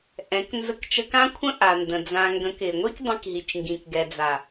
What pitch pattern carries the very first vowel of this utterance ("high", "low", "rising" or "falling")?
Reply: rising